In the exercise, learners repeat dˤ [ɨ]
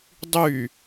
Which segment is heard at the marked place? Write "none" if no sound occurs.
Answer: y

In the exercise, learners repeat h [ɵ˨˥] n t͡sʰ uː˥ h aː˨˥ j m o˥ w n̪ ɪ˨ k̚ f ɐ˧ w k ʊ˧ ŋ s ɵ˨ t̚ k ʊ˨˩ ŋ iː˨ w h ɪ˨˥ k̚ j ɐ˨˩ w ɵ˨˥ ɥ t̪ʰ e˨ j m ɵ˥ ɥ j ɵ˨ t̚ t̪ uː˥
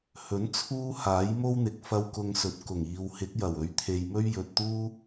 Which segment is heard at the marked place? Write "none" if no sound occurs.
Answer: ɵ˨˥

